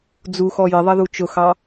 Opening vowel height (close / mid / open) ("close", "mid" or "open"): close